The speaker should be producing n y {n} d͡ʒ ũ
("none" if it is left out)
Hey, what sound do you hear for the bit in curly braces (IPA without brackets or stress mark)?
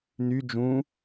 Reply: none